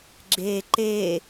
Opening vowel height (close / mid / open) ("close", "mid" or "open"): mid